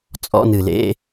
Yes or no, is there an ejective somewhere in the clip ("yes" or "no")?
yes